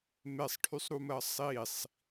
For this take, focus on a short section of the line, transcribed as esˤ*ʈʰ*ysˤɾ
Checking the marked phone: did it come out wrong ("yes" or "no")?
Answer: no